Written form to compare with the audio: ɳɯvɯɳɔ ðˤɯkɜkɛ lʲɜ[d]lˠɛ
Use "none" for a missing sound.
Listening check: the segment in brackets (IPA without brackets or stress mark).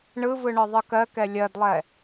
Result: d